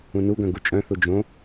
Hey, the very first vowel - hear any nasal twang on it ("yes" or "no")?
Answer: yes